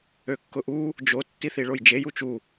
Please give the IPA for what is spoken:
økːʊʔu | d͡ʒo tːiθiɭojd͡ʒej ut͡ʃu

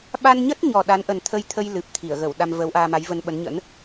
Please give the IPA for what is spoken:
ɓa˧nɲə˦˥t̚ɲɔ˨˩ ɗa˨˦nʔə˨˩nt̪ʰə˧jt̪ʰə˧j lɨ˨˩p̚t̪ʰi˧˩ə̯ɣə˧˩w ɗa˧mvə˨˦wʔaː˧ma˨˦j və˧nɓə˨˦nɲə̰˧˥n

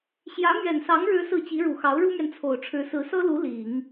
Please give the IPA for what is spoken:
ɕjä˧˥ mɥɛ˨˩nsɑ˧˥ŋ ɻɻ̩˥sɹ̩˥˩ t͡ɕi˧˥ɻu˨˩xɑ˧˥ʊ̯ ɻu˥mɥɛ˨n t͡sʰo˨˩ʊ̯ʈ͡ʂʰɻ̩˧˥ sɹ̩˧˥sɤ˥lu˧˥ li˨˩˦ŋ

